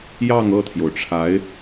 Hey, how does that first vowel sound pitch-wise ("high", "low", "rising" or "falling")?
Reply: falling